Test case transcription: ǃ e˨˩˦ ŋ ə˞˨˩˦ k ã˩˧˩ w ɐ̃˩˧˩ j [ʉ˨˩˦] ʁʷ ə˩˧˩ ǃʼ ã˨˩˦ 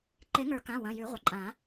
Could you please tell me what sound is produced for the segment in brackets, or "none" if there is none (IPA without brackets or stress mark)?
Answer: ʉ˨˩˦